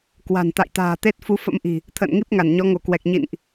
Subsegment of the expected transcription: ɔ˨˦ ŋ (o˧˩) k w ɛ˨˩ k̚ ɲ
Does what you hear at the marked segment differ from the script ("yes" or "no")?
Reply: no